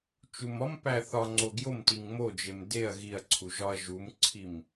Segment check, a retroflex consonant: absent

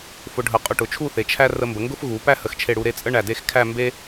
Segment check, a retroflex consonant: present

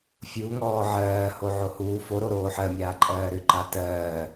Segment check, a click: present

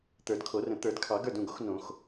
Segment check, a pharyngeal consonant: absent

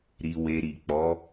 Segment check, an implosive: absent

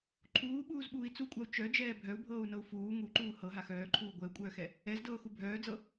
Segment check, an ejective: present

